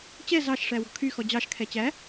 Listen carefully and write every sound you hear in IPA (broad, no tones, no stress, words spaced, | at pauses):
t͡ɕɛ zɑʃʂæ wɔ̤kʰyxɔ d͡ʑɑʃkʰɛ t͡ɕæ